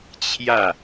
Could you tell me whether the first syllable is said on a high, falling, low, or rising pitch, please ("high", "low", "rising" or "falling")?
falling